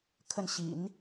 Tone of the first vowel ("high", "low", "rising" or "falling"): falling